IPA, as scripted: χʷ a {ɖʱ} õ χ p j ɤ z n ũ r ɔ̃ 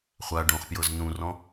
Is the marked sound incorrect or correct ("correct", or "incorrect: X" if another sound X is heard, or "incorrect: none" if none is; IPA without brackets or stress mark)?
incorrect: ɖ